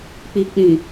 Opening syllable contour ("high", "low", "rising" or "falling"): low